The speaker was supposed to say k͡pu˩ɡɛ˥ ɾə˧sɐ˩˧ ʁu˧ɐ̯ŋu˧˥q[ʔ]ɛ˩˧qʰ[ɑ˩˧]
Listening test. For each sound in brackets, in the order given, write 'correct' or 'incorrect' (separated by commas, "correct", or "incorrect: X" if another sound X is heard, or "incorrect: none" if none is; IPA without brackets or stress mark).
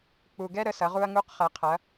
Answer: incorrect: χ, incorrect: ɐ˩˧